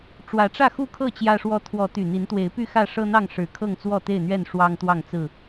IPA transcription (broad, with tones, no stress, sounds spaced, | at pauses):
ʈ͡ʂ w ä˨˦ ʈ͡ʂ ä˥˨ x u˥˨ kʰ ɤ˥˨ t͡ɕ j ä˦ ʂ w ɔ˦ t̪ʰ w ɔ˨˦ t̪ y˨˩ n̪ i˨˦ n t̪ w e˨˦ ɪ̯ p y˥˨ x ä˥˨ ʂ ɤ˦ n̪ ɑ˥˨ ŋ ʂ ɻ̩˨˩ kʰ ɤ˥˨ ŋ t͡s w ɔ˥˨ t̪ e˥˨ ɪ̯ n̪ ɥ ɛ˥˨ n ʂ w ɑ˦ ŋ t̪ w ɑ˥˨ ŋ t͡s ɹ̩˥˨